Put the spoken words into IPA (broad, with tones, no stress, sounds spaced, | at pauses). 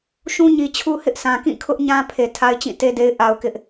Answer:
ʃ ũ˦ ɲ i˨ t͡ɕʰ u˦ h ɪ˦ ʔ sʰ ã˨ k ĩ˦˨ kʰ ʊ˦ ʔ ɲ ã˦ pʰ e˨ tʰ a˦ ɪ̯ t͡ɕ ĩ˦˨ t e˦ d e˦ ɪ̯ ʔ a˦ ʊ̯ k ɪ˦ ʔ